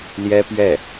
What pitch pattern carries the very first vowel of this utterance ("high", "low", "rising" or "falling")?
high